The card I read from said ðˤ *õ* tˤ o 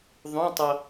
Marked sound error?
no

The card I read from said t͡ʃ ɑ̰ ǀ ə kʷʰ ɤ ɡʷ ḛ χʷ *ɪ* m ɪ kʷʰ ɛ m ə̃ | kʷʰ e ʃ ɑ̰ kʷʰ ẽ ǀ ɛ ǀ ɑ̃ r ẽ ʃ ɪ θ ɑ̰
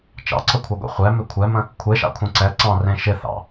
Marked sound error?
yes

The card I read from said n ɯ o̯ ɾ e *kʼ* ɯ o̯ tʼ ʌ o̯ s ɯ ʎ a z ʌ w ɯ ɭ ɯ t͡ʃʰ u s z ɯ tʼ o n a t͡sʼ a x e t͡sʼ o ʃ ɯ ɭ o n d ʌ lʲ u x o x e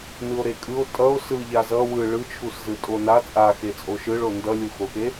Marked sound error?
no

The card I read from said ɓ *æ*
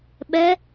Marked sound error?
yes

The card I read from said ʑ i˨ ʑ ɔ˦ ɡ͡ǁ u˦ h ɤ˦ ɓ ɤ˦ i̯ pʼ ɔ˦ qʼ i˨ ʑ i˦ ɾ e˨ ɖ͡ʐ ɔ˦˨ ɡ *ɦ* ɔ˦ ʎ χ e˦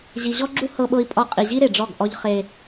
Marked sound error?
yes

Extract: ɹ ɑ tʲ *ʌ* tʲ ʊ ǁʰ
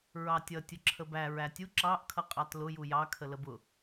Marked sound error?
no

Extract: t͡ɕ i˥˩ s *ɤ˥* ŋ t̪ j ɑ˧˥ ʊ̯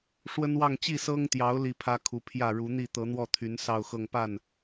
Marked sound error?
no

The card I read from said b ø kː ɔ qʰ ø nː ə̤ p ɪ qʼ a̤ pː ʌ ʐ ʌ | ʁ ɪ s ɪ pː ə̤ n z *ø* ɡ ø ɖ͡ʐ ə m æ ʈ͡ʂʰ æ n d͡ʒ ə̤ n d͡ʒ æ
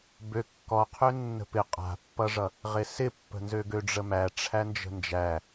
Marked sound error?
no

